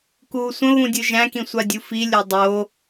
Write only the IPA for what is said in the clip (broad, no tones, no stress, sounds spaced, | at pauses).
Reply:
k uː sʷ ə̃ β ũ dʲ ɯ ʒ æ̃ k ĩ sʷ a dʲ u f i lʲ o dˤ o